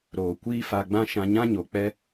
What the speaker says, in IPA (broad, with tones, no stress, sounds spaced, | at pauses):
ɾ oː˨ kʷ iː˦ f a˧ ɡ͡b ã˦ ʃ ã˧ ɲ ã˦ ɲ o˨ k͡p ɛ˦